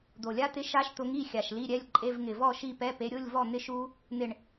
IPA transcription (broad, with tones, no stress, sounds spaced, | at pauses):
d̪ o˨˩ lʲ a˦˥ t̪ ɪ˧˥˧ ʃ a˦˥ ʃ t̪ ʊ˨˦ ŋ i˥˨ xʲ a˨˩ ʃ l i˧˥˧ ɾʲ ɛ˧˥˧ lʲ ǃʼ e˧˥˧ v ŋ ɪ˨˩ v ɔ˥˨ ʃ i˥˨ p ɛ˧˥˧ p e˨˦ ɾʲ ʊ˧˥˧ lʲ v ɔ˥˨ n̪ ɪ˦˥ ʃ u˦˥ | n̪ ɪ˥˨ ɳ